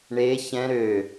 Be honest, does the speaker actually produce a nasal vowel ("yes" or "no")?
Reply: yes